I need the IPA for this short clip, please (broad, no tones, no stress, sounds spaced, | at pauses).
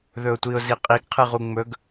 ð ɵ ʊ̯ tʷ i ʊ̯ z i qʼ i ɡ qʰ ɨ ʁ u ŋ͡m ɵ ɡ